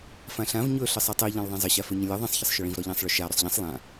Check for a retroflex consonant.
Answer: present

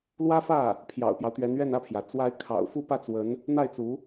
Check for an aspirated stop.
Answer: present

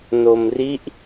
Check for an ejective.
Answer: absent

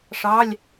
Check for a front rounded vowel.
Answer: absent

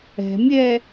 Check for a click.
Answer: absent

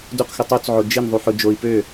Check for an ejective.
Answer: absent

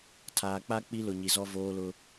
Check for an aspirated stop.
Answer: present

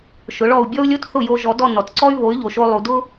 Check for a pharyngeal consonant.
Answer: absent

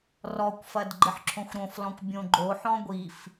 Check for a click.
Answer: present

